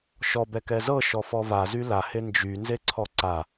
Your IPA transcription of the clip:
ʃ ɔ b ɛ k ɛ z ɤ ʃ ɔ f ɔ v a z y l a h e n d͡ʒ y n z e ǀʰ ɔ ǀ a

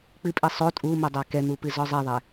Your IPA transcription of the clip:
k͡p ɨ pʼ i sˤ o tʼ u m o dˤ a k ɛ n̪ u p ɨ z ɔ zˤ e ðˤ ɛ

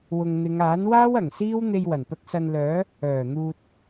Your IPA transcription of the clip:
w ʊ˨ ŋ n̪ ɪ˨˧ ŋ aː˨˥ n w aː˥ w ɐ˨˩ ŋ s iː˥ w n̪ e˧ j w ɐ˨˩ n t̪ ɐ˧ k̚ s ɐ˧ n l œː˨˥ | œː˨˩ n̪ uː˨ t̚

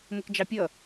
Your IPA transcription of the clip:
m ʊ k d͡ʒ ɑ pʲ ʌ

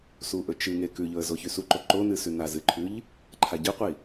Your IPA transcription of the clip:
s u ʔ ɵ t͡ʃ ɨ ŋ e k ʉ ʎ ɵ ə̯ z o ç ʉ s u ǃ o ǃ o n ɨ s ʉ n a z ɨ ǃʰ ʉ ʎ | ǃʰ a ɟ ɨ qʷ i

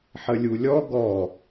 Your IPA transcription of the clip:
ħ ə lʲ u lʲ ɔ ɡ ɔ

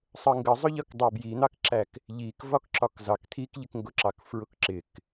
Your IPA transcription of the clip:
sˤ ə ŋ ɡ ə zˤ ʊ ʎ ʌ k dˤ ɛ b j i n̪ ɑ k ǁ æ k | ʎ i k v ɒ k ǁ ɒ k z ɑ k t̪ʰ i k ʎ ɪ k ŋ ɡ ʊ ǁ ɑ k f ɹ ʊ k ǁ ɪ k

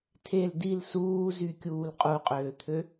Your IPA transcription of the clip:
tʰ e l d i l s uː z y kʲ uː l qʼ u qʼ øː t̪ʰ ø

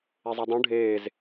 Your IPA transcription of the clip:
e zˤ ɛ dˤ ũ ɖʱ eː z

